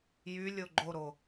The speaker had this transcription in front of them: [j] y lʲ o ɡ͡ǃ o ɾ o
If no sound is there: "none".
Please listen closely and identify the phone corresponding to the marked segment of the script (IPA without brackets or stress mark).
j